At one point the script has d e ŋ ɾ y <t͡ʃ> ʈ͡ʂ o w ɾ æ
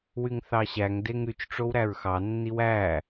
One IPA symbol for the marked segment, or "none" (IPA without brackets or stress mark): t͡ʃ